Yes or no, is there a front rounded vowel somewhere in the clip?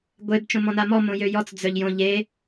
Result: yes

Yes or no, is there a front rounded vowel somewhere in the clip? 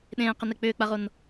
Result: yes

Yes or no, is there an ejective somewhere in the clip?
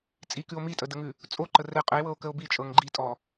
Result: yes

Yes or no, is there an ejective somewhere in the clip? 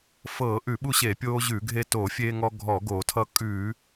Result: yes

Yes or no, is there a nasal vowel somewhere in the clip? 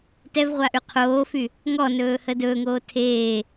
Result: no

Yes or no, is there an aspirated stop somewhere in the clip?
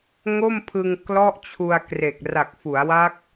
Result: yes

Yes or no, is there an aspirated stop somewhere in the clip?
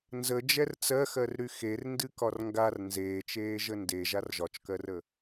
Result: no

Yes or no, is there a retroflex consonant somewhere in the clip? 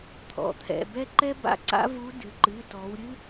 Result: no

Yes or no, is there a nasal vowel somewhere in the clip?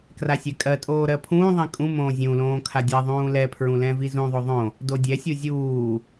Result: yes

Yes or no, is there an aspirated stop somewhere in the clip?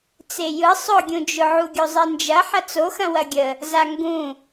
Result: no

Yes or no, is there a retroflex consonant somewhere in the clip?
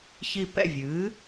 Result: no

